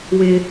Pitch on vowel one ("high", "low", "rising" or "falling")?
high